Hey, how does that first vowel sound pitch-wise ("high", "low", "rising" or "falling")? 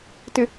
low